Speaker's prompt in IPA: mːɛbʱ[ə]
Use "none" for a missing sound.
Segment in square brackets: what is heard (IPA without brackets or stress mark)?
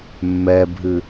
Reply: ɨ